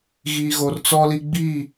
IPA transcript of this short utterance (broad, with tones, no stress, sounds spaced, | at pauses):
ɣ iː˨ ɣ o˨ r t͡s ɔ˦ l i˦ ɡ͡b i˦˨